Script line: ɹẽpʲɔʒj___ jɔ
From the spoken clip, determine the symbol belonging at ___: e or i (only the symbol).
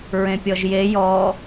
e